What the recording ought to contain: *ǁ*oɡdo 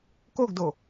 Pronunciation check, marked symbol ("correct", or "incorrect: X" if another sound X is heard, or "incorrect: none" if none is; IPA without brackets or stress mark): incorrect: k